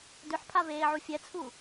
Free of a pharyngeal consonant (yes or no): no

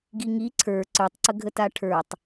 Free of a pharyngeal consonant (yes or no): yes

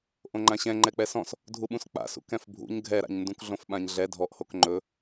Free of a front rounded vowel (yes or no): yes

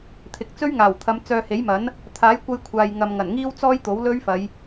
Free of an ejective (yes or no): yes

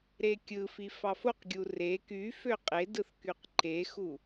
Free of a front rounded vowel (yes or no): no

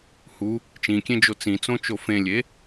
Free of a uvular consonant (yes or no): yes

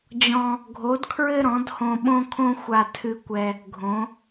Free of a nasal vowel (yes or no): no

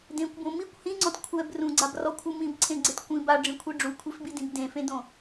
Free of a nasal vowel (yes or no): no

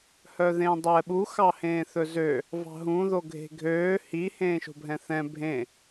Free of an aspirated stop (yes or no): yes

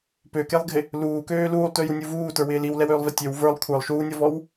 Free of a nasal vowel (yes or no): yes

